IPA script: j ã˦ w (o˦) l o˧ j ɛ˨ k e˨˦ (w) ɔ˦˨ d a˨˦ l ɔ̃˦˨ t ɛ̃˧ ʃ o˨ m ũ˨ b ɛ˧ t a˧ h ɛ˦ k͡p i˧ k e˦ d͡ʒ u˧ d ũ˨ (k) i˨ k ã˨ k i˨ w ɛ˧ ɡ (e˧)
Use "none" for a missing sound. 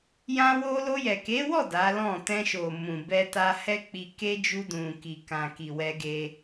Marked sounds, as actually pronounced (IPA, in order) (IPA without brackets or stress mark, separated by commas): o˦, w, k, e˧